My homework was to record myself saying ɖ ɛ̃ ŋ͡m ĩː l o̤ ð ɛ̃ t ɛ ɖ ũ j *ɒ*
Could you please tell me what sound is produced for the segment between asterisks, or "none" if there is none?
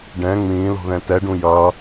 ʌ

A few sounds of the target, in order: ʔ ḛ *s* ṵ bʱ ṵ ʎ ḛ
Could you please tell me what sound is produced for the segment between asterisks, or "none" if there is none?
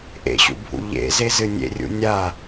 ɕ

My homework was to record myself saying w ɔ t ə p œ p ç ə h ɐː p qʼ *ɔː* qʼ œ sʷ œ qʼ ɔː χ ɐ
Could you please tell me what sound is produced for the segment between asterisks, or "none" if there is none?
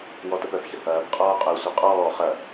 ɔː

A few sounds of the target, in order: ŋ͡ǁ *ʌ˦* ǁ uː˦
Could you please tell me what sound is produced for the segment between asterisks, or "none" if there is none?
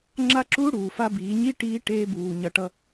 a˦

